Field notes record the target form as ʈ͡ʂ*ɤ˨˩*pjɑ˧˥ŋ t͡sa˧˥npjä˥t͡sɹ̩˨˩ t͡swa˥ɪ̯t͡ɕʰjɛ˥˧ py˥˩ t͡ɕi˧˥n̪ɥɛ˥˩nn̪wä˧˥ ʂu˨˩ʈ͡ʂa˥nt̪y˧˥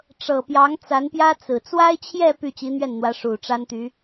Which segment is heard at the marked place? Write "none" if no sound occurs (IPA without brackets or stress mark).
ɤ˨˩